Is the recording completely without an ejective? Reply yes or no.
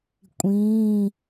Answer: no